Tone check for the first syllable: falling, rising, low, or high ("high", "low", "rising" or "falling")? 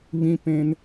low